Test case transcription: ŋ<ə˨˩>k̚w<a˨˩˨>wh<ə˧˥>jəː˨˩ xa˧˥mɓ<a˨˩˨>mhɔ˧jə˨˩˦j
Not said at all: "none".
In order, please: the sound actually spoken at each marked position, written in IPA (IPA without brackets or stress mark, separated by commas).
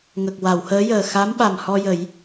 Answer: ə˨˩, a˨˩˨, əː˧˥, a˨˩